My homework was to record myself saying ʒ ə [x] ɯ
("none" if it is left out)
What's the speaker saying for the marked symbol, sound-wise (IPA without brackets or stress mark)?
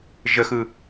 x